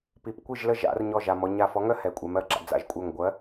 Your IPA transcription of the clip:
p i˩ p kʷ i˥˨ ʒ l ə˥˨ ʒ a̰˩˧ r ɲ ɔ˧˩ ʒ a˩ m ɔ˩˧ ɲ a˧˩ f ɔ˨˥ ŋ œ˥ h ɛ˩˧ kʷʼ ɛ˩˧ m ɜ˩ ɡ͡ǁ a̰˩˧ d͡z a̰˧˩ ʒ kʷʼ œ˧˩ ŋ ɡʷ ɜ˨˥

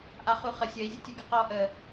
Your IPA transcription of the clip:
ʔ a χ u χ ə sʲ ə i̯ zʲ ə tʲ u ɡ ə q ɔ ʔ ə

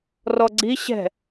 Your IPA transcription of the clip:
r ɔ ɡ͡ǀ i ɕ ɛ̤

